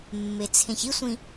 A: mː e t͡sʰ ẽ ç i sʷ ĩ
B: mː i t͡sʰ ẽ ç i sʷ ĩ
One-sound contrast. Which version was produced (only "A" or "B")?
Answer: A